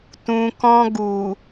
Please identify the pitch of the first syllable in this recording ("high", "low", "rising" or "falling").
low